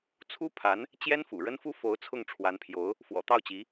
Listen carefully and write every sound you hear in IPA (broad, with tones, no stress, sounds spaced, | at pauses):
t͡sʰ u˥ pʰ a˧˥ n | t͡ɕ j ɛ˥ n f ṵ˨˩ ɻ ə˥ n f u˥ f o˧˥ ʊ̯ t͡sʰ ʊ˥˩ ŋ ʈ͡ʂʰ w a˧˥ n pʰ j o˧˥ ʊ̯ | f w ɔ̰˨˩ t̪ ɑ˥˩ ʊ̯ t͡ɕ i˧˥